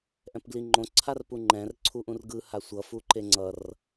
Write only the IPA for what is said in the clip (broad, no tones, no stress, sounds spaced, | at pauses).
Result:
ʔ ɛ̃ p ɡ l i ŋ͡ǃ õ ǀʰ a r p u ŋ͡ǃ ɛ̃ r ǀʰ u ʔ ũ r ɡ ɯ h a sʷ ʌ f u ǃ e ŋ͡ǀ ʌ r